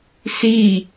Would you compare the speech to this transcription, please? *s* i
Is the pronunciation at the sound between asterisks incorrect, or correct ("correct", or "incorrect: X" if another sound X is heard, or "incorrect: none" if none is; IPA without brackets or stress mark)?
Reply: correct